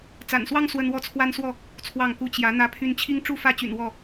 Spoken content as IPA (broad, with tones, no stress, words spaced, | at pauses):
t͡sa̰˨˩nswɑ˦ŋ swə˦nwɔ˥˨t͡sʰwa˦nswɔ˥˨ | t͡sʰwɑ˥˨ŋku˦ t͡ɕjä˨˦ n̪ä˦pʰy˦n t͡ɕʰi˦ŋʈ͡ʂu˥˨fä˥˨t͡ɕy̰˨˩n wɔ˥˨